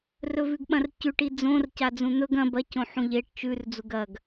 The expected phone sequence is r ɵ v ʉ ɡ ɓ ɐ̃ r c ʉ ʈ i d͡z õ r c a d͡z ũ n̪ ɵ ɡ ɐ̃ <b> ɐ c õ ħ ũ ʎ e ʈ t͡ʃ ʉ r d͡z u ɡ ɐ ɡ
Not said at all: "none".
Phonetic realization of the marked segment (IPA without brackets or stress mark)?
b